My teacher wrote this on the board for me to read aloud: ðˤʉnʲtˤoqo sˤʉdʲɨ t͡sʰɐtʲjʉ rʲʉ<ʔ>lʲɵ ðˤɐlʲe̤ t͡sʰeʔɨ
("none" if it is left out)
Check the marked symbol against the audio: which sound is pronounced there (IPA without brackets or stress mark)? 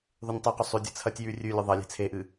none